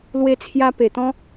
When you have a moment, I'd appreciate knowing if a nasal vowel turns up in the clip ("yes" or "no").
yes